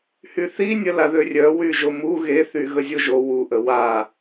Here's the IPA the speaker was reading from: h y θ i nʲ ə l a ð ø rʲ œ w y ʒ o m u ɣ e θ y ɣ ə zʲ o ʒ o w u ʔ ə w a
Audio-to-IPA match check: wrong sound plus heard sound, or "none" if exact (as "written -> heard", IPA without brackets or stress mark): none